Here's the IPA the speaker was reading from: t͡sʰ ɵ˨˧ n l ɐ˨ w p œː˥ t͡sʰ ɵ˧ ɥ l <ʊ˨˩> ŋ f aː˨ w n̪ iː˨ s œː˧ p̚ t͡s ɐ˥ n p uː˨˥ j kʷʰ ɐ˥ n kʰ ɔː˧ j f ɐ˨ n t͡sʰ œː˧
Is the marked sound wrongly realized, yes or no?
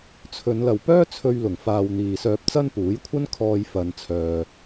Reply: no